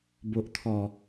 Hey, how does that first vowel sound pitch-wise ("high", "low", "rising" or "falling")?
low